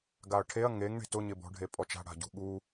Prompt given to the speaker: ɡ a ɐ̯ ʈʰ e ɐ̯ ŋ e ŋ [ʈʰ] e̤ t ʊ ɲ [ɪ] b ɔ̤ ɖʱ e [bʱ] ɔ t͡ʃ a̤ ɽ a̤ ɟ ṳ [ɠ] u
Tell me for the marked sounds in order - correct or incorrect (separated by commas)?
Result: incorrect, correct, incorrect, correct